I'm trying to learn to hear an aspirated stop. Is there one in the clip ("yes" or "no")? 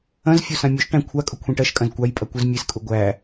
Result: yes